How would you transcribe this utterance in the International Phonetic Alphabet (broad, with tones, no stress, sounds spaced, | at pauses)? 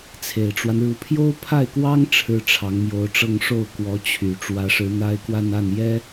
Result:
t͡sʰ e˨˩ ɪ̯ ʈ͡ʂ w a˦ n ɻ u˧˥ pʰ j o˥ ʊ̯ pʰ a˥˩ ɪ̯ k w ɑ˥ ŋ ʈ͡ʂʰ ɻ̩˥ ʈ͡ʂʰ ɑ˧˥ ŋ m j o˧˥ ʊ̯ ʈ͡ʂ ɤ˥˧ ŋ ʂ o˥˩ ʊ̯ k w ɔ˧˥ t͡ɕʰ y˨˩ ʈ͡ʂ w ä˧˥ ʂ ɻ̩˧˥ n̪ a˥ ɪ̯ k w a˥˧ n a˥˩ n j ɛ˥